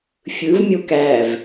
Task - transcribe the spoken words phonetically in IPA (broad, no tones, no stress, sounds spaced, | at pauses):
fʲ ɯ v mʲ o k æ v